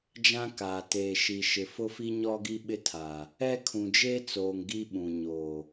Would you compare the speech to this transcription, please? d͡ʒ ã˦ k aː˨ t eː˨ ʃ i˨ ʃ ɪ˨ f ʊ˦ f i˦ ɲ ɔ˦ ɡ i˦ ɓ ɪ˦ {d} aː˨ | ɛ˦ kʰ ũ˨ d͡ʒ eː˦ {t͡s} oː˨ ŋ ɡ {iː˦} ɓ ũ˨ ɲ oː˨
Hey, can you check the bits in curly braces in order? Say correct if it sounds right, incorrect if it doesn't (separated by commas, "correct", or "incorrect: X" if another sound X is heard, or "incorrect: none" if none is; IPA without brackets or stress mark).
incorrect: tʰ, correct, incorrect: i˦